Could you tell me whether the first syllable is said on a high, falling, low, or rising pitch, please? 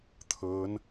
rising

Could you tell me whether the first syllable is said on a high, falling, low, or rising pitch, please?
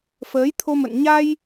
rising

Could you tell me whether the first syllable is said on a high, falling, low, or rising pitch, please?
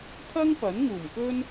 high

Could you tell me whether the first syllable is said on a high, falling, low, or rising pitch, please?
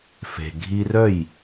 low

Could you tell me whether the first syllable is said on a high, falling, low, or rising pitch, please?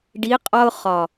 rising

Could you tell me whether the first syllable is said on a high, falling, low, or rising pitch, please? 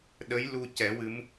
rising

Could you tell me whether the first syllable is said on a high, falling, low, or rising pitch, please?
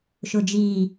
low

